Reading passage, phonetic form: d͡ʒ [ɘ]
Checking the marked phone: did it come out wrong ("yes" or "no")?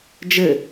no